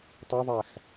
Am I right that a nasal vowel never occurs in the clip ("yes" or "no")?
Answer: yes